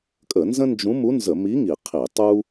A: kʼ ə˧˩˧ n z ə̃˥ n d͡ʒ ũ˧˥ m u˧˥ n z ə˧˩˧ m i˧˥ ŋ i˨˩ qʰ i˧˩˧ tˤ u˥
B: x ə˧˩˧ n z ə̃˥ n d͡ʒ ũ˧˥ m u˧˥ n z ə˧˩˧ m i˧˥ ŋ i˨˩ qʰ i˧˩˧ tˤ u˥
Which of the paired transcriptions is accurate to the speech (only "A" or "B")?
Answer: A